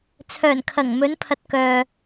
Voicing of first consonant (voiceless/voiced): voiceless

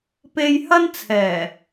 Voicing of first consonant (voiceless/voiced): voiceless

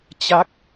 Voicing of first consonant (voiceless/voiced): voiceless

